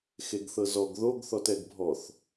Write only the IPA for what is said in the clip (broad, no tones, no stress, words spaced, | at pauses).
xeɡθɤzɔɡ ðoɡ θɔtɛɡbʱɔθ